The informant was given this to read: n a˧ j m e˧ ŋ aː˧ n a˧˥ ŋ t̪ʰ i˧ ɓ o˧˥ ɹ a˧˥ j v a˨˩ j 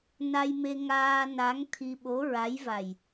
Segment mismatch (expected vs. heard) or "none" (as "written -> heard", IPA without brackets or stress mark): none